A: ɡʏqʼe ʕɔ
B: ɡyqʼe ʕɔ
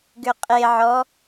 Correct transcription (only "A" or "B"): A